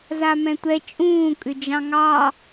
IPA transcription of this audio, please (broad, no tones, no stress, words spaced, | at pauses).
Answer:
zamɛ̃tʷɛ t͡ʃʼũː kʼʏd͡ʒɑ̃ŋɑ